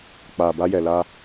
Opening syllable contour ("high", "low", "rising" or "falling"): low